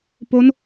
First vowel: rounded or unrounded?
rounded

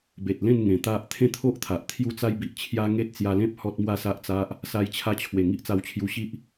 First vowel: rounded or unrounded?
unrounded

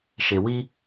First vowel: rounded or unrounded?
unrounded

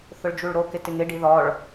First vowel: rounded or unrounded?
rounded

